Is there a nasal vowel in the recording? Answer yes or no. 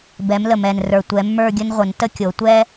no